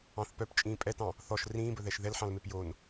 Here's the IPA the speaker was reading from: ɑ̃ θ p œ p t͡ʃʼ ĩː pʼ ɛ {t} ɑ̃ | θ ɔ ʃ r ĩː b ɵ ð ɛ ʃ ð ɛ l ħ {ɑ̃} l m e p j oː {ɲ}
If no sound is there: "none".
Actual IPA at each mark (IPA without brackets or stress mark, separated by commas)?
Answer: t, ɑ̃, n